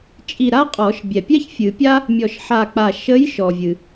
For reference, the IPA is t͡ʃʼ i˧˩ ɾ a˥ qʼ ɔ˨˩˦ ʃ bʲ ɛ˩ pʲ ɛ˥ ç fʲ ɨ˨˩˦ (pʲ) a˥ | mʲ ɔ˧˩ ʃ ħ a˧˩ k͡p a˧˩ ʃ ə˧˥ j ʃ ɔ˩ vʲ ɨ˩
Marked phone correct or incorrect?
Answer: correct